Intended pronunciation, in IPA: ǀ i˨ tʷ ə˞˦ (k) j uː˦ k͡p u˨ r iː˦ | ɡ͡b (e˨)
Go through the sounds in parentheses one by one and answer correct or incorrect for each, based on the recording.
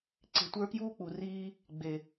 correct, correct

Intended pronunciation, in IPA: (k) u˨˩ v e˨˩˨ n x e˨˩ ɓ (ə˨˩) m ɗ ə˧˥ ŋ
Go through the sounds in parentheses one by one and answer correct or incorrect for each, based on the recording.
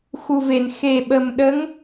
incorrect: x, correct

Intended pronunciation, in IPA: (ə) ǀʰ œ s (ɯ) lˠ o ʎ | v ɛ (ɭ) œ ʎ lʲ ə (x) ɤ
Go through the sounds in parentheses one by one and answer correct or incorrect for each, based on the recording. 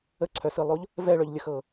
correct, correct, correct, correct

